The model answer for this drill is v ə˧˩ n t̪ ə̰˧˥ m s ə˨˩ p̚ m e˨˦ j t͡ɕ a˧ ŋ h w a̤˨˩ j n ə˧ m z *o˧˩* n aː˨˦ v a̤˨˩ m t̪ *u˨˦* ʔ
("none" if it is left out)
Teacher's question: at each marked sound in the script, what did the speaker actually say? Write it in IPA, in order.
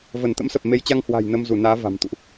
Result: u˧˩, ṵ˧˨

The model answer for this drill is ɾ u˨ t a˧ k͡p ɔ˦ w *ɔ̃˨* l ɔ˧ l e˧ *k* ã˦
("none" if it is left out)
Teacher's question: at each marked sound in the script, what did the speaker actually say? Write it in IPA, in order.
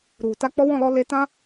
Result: ɔ̃˦˨, t

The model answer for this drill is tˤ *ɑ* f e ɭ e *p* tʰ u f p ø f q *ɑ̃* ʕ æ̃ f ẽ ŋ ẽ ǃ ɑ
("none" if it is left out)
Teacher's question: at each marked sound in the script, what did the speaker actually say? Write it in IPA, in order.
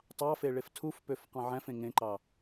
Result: ɑ, f, ɑ̃

